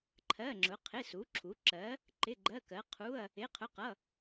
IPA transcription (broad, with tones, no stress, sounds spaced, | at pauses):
ǃʰ ɜ˧˥˧ ŋ͡ǁ ʊ˨˥ qʰ ɪ˧˥˧ s u˨˥ ǁʰ u˨˥ ǁ ɜ˨˥ | ǃ ɪ˧˥˧ ɡ͡ǃ ɜ˧˥˧ k ɜ˨˥ qʰ u˧˥˧ ɐ̯ | ɪ˧˥˧ qʰ ʊ˧˥˧ q ʌ˧˥˧